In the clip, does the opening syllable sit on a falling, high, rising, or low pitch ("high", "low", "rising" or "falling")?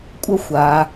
high